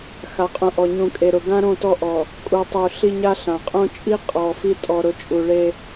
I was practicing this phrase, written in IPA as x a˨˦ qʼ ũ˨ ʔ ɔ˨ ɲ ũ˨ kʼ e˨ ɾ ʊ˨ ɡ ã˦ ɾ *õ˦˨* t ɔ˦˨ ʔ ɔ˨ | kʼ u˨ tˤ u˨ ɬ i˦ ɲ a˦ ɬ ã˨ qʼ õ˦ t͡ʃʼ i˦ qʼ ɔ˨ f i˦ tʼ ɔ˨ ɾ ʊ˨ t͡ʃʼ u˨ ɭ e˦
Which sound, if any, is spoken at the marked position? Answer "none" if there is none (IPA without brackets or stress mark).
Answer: õ˦˨